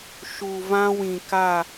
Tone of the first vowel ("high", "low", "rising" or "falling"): low